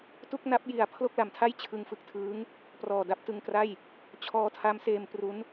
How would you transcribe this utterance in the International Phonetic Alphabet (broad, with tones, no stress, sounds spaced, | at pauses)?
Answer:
t u˥˩ k̚ n a˦˥ p̚ j i˨˩ a̯ pʰ l o˥˩ k̚ l a˩˦ m tʰ a˥˩ j t͡ɕʰ ɯ˧ ŋ f ɯ˨˩ k̚ tʰ ɯː˦˥ ŋ | p r ɔː˨˩ d a˦˥ p̚ t ɯ˧ ŋ k r a˥˩ j | t͡ɕʰ ɔː˧ tʰ a˦˥ m s eː˧ m p r u˦˥ n